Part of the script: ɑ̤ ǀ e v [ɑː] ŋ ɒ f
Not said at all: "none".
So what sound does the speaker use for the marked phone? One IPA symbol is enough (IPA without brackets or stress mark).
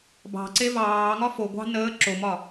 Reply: ɑː